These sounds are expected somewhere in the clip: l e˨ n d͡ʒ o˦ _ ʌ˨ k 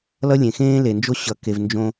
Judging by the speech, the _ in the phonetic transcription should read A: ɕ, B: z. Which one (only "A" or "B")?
A